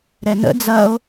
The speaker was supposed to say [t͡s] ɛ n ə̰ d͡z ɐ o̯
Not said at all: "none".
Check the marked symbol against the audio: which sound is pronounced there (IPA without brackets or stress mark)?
ɾ